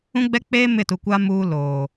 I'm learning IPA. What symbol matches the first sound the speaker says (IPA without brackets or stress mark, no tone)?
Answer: ũ